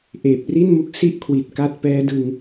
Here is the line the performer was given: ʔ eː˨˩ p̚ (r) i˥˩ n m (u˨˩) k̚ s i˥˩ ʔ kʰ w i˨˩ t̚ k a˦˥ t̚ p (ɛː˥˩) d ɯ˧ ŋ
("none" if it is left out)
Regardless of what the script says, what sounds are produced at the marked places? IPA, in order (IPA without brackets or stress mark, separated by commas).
r, u˦˥, ɛː˦˥